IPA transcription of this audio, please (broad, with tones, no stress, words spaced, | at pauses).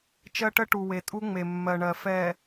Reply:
t͡ʃɜ˦ʈə˦ʈu˨ we˨tʼu˦ŋ͡me˨ mːɜ˨ɳɜ˨ fɛ˨